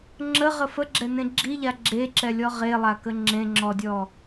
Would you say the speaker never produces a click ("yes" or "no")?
no